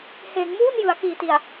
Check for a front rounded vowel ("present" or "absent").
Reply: absent